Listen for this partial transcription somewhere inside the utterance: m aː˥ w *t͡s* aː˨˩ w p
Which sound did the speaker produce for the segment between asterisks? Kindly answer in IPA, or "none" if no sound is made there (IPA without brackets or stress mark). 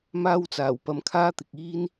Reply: t͡s